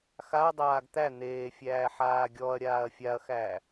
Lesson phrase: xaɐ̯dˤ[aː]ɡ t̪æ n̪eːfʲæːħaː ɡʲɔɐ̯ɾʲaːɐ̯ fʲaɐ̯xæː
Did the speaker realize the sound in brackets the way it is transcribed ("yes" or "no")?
yes